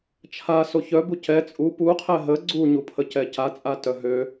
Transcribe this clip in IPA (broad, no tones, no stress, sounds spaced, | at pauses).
t͡ʃʰ a s o ç œ b u c ɛ t͡sʼ u p u qʰ ɛ ɦ ə ɡ͡ǀ u ɲ u pʰ ə c ɛ c a t͡sʼ a t œ ɦ ø